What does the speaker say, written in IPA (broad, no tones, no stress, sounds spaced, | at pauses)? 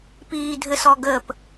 p iː dʱ ɘ s ɔ ɡ ə p